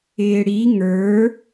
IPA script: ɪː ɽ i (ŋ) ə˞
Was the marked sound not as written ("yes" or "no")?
no